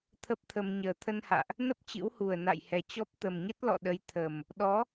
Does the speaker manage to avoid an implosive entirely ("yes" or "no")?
no